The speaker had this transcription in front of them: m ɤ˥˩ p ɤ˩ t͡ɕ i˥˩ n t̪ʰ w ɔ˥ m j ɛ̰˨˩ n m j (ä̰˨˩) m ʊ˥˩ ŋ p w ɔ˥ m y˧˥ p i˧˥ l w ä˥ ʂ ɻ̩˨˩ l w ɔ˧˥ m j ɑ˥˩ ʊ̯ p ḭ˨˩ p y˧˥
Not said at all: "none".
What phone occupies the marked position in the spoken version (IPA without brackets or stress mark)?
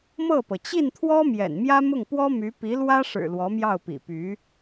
ä˥